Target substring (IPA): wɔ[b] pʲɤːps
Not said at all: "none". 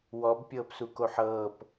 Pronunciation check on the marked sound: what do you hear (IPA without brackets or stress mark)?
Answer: b